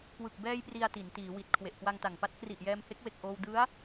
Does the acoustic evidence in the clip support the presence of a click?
no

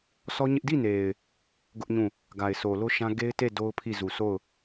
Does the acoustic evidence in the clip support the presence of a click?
no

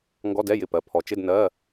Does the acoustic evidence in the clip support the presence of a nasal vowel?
no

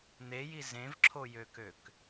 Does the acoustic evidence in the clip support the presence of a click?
yes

